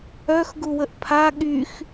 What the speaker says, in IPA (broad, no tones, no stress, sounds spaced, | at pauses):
œ x ɡ u w ə ʔ pʰ a ɠ y x